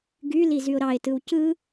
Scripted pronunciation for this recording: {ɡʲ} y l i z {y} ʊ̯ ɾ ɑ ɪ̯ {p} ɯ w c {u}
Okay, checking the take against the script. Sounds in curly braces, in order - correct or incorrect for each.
incorrect, correct, incorrect, incorrect

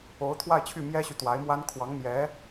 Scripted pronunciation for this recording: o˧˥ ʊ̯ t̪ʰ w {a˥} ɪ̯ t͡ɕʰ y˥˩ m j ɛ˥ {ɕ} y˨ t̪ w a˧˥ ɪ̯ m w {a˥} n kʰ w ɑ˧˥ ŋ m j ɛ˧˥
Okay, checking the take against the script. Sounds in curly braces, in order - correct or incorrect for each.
incorrect, correct, correct

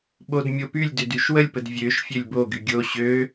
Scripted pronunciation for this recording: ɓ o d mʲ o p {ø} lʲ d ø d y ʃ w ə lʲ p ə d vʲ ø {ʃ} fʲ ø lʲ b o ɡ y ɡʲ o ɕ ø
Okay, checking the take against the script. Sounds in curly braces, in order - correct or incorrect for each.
incorrect, correct

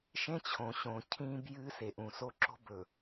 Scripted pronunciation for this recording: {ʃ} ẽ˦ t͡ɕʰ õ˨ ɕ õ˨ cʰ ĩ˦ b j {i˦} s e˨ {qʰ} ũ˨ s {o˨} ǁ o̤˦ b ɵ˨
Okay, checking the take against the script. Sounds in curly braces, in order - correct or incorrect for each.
correct, incorrect, incorrect, incorrect

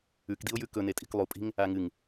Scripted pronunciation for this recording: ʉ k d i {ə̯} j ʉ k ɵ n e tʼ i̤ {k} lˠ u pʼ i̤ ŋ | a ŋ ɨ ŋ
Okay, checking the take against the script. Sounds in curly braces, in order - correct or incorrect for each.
incorrect, correct

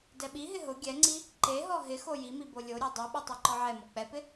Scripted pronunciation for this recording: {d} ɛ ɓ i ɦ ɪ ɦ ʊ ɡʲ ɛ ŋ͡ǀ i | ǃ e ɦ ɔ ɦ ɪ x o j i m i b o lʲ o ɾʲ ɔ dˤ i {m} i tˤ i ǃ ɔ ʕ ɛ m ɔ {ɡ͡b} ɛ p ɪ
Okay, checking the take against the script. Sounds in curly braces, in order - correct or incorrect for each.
correct, incorrect, incorrect

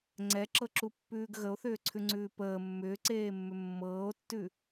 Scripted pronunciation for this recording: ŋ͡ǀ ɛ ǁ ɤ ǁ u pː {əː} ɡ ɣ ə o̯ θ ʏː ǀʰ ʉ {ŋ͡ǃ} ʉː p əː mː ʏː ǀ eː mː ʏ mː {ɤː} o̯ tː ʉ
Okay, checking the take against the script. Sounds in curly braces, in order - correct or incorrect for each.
incorrect, incorrect, correct

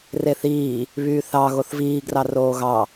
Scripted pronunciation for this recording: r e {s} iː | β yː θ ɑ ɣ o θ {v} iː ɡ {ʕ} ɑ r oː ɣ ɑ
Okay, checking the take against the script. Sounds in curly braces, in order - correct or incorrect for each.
incorrect, correct, incorrect

